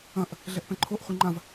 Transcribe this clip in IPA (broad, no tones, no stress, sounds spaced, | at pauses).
ɐ̃ ʔ | ɮ ɛ ʔ p ɛ̃ ǃʰ o ʔ χʷ i ŋ͡ǃ ã v